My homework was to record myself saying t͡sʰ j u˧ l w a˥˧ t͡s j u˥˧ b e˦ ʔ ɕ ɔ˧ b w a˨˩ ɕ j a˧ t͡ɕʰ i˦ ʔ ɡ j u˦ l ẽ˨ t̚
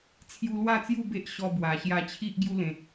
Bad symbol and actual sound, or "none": none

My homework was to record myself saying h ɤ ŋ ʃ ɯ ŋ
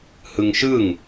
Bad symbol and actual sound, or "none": ɤ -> ɯ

